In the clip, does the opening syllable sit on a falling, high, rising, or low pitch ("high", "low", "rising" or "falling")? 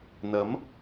rising